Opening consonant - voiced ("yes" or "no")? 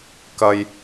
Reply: no